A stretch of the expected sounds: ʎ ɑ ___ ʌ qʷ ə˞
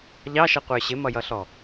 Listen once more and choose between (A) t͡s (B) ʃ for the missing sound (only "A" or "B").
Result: B